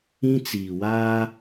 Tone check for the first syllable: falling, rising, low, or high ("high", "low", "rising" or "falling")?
high